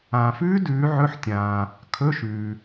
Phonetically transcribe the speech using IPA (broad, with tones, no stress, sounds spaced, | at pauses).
ãː˨ f ʉː˦˥ d ʉː˨˦ ʕ ɵ˧˥˧ ħ tʲ ãː˨ | kʰ ɵ˧˥˧ ʃ ʉː˨